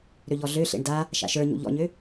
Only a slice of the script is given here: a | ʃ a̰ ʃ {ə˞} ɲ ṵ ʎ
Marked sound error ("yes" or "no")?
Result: no